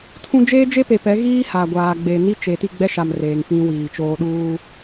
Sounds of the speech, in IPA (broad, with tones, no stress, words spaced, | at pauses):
tʰũ˦ d͡ʒeː˦d͡ʒe˦ pe˨pɛ˨˦ ɣiː˦ ha˨ ɡʷaː˨ɡ͡be˨ ni˦ t͡ʃe˨ ti˦˨ɡ͡bɛ˦ʃa˨m reː˨ŋfĩ˦wiː˨t͡ʃoː˦ ɗuː˦